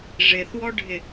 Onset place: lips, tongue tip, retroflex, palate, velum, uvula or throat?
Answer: retroflex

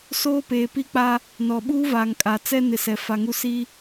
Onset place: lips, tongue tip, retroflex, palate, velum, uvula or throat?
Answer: tongue tip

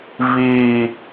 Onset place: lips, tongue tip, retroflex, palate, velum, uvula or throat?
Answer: lips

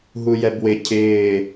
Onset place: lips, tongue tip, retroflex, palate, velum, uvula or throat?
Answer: throat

